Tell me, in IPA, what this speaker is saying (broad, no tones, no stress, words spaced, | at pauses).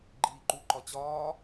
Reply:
ɡ͡ǃiːǃu ǃɒt͡ɕɒː